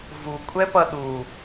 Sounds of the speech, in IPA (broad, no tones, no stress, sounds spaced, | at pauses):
v u kʷʼ ɛ p ʌ ɗ u